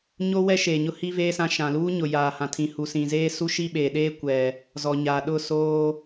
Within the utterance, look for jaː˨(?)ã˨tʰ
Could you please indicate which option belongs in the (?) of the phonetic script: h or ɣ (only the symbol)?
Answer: h